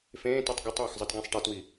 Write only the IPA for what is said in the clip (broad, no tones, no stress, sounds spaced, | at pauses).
f ẽː t ɯ tˤ ɡ ɪ tˤ w ə x zˤ ɯ t ɡ ẽ sˤ ʈ ɛ t w i